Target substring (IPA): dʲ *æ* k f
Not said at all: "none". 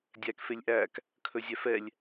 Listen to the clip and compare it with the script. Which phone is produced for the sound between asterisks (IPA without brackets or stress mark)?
æ